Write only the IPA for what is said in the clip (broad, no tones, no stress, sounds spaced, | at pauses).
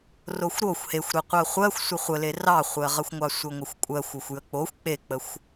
r o xʷ ɾ o xʷ h e xʷ ɾ e qʷ ɜ χʷ ɜ xʷ sʷ ə χʷ ə l e r ɑ χʷ ɜ ʁ ə xʷ ŋʷ ɑ sʷ ə ŋʷ ə xʷ kʷʼ ɜ xʷ o xʷ j ə k͡p o xʷ k͡p e k͡p ə xʷ